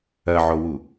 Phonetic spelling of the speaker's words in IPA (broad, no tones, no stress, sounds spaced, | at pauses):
ɐ ʕ o w u